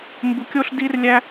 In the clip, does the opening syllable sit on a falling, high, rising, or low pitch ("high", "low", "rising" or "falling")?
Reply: high